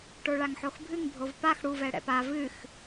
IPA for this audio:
ʈ o ɭ a ŋ ħ o x bʱ ɨ ŋ bʱ o v p a x ɽ u v ɛ ɽ ɛ̰ p a v ɨ x

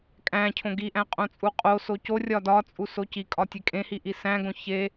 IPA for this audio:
kʼ æ̃ cʰ õ ɡ i ʔ æ̃ qʼ õ t͡sʼ u qʼ o s o c o rʲ ɒ d ɒ t͡sʼ u s o c i kʼ ɒ tʲ e kʼ ẽ h i ʔ i s æ̃ ɡ õ ç e

